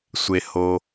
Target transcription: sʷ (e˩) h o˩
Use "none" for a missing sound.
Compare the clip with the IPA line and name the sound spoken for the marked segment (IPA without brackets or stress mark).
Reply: e˩